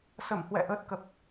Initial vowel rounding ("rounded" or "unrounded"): unrounded